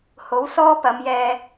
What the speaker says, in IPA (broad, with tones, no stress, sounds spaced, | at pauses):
h o˨˥ w s ɔː˥ p ɐ˨˧ m j ɛː˧